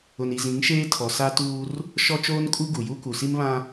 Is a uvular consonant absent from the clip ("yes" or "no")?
yes